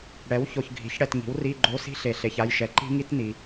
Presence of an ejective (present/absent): absent